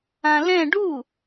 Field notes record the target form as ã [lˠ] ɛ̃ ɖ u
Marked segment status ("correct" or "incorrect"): incorrect